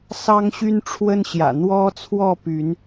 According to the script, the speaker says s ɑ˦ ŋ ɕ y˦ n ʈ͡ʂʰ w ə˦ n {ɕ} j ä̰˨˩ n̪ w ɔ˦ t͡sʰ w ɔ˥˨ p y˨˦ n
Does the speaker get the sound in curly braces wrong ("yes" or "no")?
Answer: no